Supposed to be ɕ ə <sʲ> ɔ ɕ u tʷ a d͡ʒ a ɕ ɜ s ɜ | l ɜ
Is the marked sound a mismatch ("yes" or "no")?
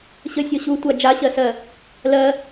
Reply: no